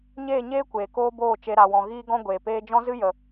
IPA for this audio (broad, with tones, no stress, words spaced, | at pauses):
ɲeː˦˨ɲeː˦ kʷeː˨koː˦boː˦˨ t͡ʃe˧ ɾa˨wɔ̃˨ ɣiː˦ɡɔ̃˦ ɡʷeː˨peː˦ d͡ʒɔ̃˦zɨ˦ jə˨